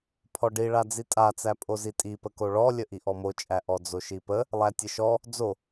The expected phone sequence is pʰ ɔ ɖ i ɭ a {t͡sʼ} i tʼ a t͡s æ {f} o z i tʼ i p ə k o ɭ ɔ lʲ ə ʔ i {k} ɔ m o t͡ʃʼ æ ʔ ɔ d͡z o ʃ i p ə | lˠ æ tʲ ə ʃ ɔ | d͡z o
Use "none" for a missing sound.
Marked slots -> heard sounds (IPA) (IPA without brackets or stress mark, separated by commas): d͡z, pʼ, ʔ